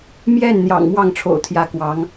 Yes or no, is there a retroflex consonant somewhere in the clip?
yes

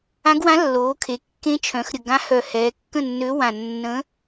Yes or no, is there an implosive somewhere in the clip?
no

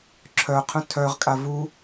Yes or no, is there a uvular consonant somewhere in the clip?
yes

